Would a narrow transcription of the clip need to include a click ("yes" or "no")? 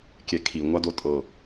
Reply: no